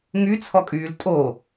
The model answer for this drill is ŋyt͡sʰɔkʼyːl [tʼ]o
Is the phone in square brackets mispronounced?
no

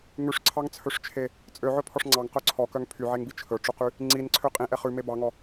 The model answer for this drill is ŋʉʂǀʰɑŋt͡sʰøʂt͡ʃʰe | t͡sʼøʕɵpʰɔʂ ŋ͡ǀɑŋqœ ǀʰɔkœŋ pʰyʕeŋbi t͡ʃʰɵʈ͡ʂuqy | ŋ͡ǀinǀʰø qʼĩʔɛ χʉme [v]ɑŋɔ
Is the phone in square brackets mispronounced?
yes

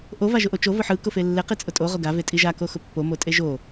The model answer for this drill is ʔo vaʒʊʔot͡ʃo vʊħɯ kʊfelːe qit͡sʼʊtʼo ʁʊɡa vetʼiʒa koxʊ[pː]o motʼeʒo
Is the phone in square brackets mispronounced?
no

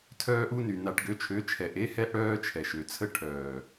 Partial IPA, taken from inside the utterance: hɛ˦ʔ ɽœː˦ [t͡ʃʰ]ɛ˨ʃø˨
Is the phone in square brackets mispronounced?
no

